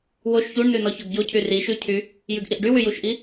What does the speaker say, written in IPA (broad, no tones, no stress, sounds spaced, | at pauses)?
w o ʃ ç u ɳ n ʉ n ɔ ç ɔ ɡ ɟ o cʰ y r i ʃ ʉ cʰ y | j ʉ ɡ ʔ i ʔ ɖ y w y j u ʃ ʔ i